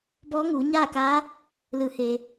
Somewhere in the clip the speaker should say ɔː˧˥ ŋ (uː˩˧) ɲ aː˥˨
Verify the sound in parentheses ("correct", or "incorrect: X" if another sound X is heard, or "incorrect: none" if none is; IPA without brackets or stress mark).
correct